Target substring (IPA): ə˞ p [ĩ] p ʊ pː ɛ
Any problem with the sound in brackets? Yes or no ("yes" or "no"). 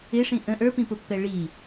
no